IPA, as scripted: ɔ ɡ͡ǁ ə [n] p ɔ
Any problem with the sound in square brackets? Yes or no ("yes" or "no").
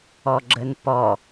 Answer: no